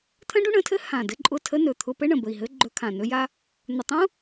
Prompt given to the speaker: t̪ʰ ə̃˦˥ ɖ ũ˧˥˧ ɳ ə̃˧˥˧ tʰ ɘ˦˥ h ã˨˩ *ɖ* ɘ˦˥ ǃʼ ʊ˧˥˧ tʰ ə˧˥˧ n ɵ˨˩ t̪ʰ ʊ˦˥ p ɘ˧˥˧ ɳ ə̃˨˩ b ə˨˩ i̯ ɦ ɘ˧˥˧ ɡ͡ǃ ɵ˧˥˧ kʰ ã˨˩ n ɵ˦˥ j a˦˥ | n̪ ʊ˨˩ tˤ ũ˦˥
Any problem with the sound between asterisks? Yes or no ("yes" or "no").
yes